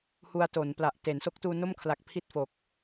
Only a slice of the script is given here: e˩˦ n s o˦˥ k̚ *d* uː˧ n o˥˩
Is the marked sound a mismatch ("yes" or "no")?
yes